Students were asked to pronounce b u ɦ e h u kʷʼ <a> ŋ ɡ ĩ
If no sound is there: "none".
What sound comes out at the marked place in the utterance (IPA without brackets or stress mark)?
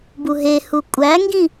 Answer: æ